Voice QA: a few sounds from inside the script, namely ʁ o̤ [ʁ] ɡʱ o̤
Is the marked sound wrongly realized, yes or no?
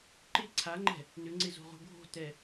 yes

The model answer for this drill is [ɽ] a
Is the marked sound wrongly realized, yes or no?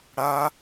no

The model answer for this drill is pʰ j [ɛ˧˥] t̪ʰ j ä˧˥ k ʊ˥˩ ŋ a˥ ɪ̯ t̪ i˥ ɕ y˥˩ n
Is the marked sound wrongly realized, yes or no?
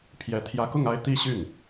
no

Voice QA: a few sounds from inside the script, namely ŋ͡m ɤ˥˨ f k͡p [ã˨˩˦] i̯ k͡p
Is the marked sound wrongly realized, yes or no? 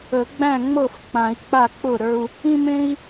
no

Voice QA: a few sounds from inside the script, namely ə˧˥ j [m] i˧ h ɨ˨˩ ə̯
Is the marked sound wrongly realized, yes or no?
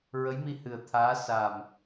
no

